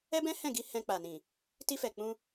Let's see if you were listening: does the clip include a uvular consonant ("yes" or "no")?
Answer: no